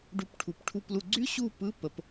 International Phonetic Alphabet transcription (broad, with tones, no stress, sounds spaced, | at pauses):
ɖ u˧˥ p ʈʰ u˨˩˦ p ʈʰ u˥˧ p l u˥˧ ɡ͡ǀ y˥ ɕ u˥˧ p ɯ˧˥˧ p ə˧˥ p